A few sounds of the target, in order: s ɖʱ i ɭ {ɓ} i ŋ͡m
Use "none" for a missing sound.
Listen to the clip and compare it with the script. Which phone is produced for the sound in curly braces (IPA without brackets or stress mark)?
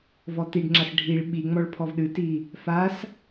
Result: ɓ